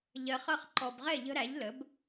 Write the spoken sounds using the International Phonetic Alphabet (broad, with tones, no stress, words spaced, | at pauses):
ʎɜ˨χʌ˥˩χ ǃɔ˨bʁɛ˥˩ʎə̤˦ ɾæ˩˥ʎlə˩˥b